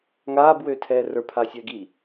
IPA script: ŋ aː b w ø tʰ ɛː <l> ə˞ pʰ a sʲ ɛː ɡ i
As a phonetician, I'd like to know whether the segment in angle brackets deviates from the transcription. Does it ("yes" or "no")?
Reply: yes